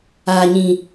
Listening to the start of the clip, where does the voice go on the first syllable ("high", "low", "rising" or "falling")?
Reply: low